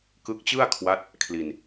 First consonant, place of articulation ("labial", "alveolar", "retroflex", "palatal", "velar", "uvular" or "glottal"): velar